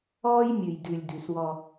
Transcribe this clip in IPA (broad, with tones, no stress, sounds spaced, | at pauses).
ɔː˦ j mʲ ʉ˨ j d ʉ˨ lʲ d ʉ˨ s w ɔ˦